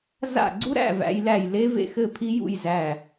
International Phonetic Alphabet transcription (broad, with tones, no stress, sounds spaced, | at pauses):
z a̰˦˨ ɡ͡ǀ u˦ ɾ æ̰˦˨ v æ̰˦ j l æ˦˨ j l e˦ v ḛ˦˨ x ɘ˦˨ pʰ i˦ j ṵ˦˨ j z æ˦˨